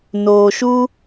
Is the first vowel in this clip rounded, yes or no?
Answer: yes